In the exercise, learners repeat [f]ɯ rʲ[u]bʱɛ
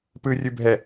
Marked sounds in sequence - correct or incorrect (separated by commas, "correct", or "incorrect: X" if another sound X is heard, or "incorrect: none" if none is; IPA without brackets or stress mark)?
incorrect: p, incorrect: ɯ